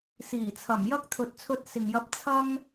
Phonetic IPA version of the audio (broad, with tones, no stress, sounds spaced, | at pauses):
s iː˨˩ t͡sʰ ɐ˨˩ m j ɐ˥ k̚ t̪ʰ ɵ˨ t̚ t͡sʰ ɵ˧ t̚ s ɪ˨ ŋ j ɐ˧ p̚ t͡sʰ ɐ˥ ŋ